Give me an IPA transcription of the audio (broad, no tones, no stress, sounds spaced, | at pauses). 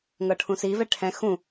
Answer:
ŋ ɤ ʈʰ ũ s i v ɛ ʈʰ ɛ̃ x ũ